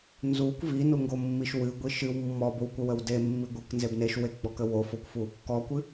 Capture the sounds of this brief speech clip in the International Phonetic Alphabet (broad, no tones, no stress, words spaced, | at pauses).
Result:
nzukʷ vinuŋɡomːiʃ wɨɡʷi ʃɨw mːɔbowkʷəwəw demːi ɡʷɨknzeb neʃweɡ͡bɔkə wofokʷfu | kɔkʷɨ